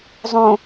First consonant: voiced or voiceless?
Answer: voiced